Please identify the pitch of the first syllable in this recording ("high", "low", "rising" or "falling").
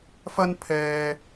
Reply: high